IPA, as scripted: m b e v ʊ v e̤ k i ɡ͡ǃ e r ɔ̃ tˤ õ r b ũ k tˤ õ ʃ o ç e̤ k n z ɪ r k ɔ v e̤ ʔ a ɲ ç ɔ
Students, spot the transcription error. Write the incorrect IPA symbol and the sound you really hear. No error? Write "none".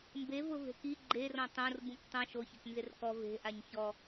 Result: none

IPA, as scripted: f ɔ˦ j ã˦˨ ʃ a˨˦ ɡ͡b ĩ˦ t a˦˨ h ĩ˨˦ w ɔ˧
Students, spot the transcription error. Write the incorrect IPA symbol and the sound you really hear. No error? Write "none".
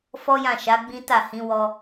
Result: none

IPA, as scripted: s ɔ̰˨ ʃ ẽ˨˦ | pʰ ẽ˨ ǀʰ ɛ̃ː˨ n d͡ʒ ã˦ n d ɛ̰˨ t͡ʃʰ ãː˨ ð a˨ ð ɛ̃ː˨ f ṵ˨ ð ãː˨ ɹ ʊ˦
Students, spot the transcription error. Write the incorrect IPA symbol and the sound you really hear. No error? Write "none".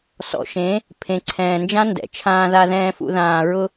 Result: none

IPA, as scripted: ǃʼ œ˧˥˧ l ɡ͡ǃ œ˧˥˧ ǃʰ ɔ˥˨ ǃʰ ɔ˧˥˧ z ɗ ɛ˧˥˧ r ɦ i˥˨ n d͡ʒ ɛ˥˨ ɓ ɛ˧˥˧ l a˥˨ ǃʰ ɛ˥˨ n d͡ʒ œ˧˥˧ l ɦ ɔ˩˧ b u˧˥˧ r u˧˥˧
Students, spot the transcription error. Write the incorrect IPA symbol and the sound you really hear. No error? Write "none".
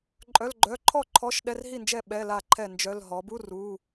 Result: z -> ʃ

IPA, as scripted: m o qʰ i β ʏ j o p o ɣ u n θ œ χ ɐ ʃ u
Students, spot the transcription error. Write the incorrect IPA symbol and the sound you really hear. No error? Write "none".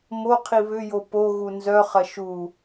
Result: θ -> z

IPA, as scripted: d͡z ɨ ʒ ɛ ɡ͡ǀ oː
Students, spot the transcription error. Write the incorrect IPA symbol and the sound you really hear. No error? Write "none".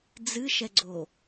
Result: ʒ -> ʃ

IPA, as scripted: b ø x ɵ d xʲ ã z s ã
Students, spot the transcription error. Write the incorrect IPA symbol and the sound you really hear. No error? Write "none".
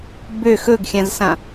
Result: d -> ɡ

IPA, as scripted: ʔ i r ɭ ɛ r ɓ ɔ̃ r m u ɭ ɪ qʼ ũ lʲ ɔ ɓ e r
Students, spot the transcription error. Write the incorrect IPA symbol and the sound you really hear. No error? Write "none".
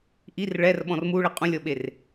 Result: none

